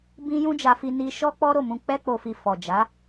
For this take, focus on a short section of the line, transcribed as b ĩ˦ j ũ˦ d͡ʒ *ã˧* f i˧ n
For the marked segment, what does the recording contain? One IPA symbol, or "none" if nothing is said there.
a˧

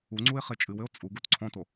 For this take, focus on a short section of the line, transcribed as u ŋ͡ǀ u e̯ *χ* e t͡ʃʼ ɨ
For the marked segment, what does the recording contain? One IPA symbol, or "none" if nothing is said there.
χ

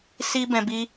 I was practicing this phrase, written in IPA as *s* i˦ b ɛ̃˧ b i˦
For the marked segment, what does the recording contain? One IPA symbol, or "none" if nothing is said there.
s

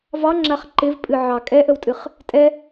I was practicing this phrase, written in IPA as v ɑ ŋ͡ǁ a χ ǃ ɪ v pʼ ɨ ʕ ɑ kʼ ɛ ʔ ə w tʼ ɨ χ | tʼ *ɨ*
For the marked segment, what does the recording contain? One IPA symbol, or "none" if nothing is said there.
ɛ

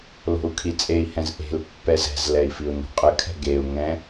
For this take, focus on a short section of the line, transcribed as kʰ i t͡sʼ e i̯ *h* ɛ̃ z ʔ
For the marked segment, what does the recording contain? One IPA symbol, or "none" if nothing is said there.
h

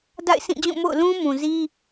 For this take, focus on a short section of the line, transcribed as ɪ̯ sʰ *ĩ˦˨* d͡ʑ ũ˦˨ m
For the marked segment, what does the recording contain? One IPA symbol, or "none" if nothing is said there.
ĩ˦˨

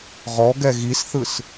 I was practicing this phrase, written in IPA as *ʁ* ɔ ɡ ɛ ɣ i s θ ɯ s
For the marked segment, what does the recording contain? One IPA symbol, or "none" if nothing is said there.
ʁ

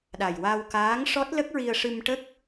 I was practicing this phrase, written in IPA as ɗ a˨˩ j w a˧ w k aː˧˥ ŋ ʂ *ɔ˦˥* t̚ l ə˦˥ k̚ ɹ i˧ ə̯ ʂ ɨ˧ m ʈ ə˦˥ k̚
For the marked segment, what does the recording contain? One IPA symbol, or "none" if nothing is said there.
ɔ˦˥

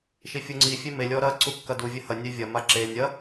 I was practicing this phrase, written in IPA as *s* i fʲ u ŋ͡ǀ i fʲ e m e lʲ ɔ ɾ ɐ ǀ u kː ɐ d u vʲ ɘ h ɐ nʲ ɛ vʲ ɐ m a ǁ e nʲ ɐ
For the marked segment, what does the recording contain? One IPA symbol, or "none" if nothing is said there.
ʃ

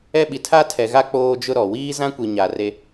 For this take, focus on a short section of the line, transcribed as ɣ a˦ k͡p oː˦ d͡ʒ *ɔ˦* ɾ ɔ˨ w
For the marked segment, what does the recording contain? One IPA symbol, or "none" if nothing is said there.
ʊ˦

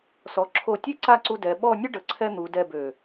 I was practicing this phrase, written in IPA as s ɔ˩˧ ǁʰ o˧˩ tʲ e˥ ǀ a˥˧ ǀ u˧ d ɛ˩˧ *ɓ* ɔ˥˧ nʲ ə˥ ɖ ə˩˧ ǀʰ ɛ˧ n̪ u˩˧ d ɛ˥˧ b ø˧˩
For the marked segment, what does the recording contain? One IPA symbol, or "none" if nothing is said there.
ɓ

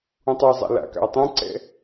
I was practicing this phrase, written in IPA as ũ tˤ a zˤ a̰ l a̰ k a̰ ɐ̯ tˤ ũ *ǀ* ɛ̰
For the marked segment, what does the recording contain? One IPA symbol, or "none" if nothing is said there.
ǀ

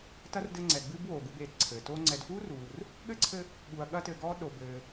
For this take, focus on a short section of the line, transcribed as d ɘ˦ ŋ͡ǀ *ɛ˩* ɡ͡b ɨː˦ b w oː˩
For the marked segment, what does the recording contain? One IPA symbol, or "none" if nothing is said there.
ɛ˩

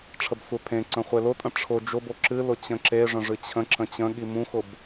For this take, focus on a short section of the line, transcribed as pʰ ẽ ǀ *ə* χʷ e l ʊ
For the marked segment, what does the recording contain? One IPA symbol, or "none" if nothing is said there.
ə̃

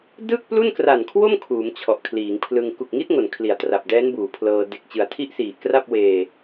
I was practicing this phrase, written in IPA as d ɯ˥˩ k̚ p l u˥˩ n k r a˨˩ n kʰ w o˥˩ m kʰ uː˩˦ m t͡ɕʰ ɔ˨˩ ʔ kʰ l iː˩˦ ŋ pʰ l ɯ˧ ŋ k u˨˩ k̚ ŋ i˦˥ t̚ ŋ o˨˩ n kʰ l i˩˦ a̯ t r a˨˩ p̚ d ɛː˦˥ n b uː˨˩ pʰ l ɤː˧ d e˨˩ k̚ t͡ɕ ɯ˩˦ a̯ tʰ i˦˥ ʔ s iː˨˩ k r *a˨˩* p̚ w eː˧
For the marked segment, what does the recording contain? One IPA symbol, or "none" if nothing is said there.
a˥˩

